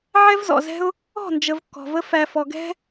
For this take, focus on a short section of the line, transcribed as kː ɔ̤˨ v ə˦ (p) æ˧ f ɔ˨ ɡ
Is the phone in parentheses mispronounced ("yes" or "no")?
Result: yes